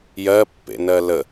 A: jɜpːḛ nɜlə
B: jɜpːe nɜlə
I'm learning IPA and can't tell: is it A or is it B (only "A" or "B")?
A